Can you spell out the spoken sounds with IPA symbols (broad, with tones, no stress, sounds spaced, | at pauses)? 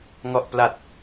ŋ ɔ˨˩ ʔ p l a˨˩ t̚